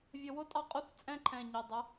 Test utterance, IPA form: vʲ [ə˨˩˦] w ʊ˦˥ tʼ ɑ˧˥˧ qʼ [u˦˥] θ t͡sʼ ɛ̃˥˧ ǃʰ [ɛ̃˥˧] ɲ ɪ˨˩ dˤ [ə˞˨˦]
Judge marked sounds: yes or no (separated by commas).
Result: yes, yes, no, no